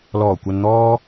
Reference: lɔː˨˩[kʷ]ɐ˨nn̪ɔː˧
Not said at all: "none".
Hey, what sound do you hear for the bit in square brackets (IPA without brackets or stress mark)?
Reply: kʷ